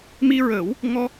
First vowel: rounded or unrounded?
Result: unrounded